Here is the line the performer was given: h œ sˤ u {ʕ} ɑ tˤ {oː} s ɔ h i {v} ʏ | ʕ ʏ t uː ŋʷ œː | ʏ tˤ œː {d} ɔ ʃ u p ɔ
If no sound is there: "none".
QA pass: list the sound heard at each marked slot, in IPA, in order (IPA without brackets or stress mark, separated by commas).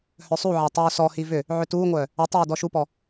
ʕ, oː, v, d